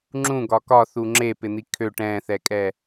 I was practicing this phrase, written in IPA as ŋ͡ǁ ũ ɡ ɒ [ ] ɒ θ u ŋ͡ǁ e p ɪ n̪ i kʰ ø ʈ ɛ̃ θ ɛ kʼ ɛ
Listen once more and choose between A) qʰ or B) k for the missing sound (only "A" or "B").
B